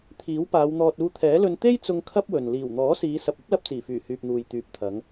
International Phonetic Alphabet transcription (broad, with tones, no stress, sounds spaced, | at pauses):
t̪ʰ iː˨˥ w p aː˨˧ w n̪ ɔː˧ t̚ uː˧ t̪ʰ ɛː˨˥ l ɵ˧ n t̪ e˥ j t͡s ʊ˧ ŋ kʰ ɐ˥ p̚ w ɵ˨ n l iː˨˩ w n̪ ɔː˨˥ s iː˨˧ s ɐ˨ p̚ ɐ˥ p̚ l ɐ˧ p̚ t͡s iː˨˩ f yː˨˩ h yː˨ p̚ n̪ uː˨ j t̪ yː˨ p̚ t̪ʰ ɐ˨˧ ŋ